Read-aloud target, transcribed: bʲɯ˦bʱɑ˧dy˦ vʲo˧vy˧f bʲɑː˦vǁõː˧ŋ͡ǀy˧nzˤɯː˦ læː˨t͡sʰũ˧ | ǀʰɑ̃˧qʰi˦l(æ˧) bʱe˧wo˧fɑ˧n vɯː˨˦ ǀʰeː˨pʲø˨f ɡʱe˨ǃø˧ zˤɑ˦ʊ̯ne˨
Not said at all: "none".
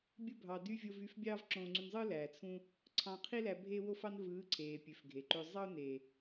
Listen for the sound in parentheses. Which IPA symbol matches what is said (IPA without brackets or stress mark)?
æ˧